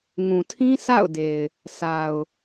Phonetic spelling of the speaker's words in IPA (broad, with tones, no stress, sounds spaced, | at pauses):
ŋ ũ˨ tʰ ĩ˦ sʰ a̰˦˨ ʊ̯ d e˨ ɪ̯ | sʰ a˨ ʊ̯